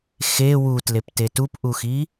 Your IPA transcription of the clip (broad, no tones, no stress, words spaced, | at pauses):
xe wutlepte tupʔuxi